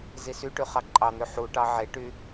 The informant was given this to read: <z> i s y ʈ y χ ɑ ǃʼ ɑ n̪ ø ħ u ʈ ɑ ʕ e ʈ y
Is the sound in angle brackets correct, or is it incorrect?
correct